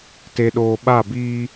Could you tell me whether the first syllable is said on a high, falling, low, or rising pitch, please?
low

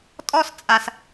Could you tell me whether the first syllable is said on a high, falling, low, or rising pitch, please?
high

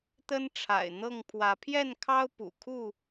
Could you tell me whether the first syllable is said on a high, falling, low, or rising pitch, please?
high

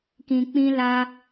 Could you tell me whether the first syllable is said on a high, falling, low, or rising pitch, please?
low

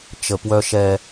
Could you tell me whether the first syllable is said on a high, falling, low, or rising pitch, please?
low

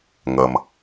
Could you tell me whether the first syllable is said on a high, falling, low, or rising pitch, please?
low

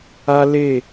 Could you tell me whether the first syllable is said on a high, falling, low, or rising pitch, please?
high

